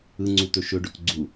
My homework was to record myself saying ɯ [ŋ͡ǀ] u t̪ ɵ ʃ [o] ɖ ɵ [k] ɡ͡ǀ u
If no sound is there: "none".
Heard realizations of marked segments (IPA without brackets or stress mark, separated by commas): ŋ͡ǀ, ɵ, k